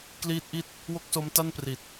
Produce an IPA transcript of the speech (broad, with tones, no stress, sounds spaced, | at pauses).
k l iː˦˥ t̚ ʔ i˥˩ t̚ | w o˥˩ k̚ s o˦˥ m t a˥˩ n p r i˨˩ t̚